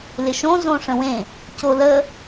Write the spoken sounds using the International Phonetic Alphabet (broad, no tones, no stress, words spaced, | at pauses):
lɪʃõ zõʂə̃wẽ | colə